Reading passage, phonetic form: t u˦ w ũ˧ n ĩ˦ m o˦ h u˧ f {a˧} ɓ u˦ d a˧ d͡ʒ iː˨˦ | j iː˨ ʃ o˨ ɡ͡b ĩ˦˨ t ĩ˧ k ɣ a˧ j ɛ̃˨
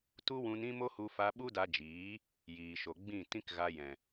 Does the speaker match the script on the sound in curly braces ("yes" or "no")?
yes